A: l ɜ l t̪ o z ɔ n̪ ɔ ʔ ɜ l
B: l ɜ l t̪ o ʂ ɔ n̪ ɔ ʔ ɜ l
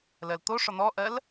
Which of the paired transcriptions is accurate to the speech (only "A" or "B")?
B